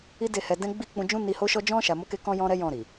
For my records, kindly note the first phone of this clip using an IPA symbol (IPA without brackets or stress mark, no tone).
i